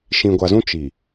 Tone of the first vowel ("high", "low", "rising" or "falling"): low